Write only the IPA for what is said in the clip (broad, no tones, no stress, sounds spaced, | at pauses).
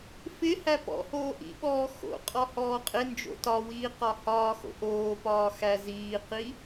f ɪ h æ p ɔ̰ h oː ʔ ḭ ɓ ɔː x o̰ qʼ ɔ h ɔː qʼ ɪ n d͡ʒ o̰ t ɒ w iː q ɒ h ɒː x o̰ ʔ oː p ɒː x æ z iː q i